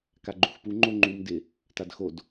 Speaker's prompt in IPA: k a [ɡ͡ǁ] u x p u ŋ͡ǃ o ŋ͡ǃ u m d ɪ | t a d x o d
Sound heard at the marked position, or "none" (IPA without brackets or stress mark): ɡ͡ǃ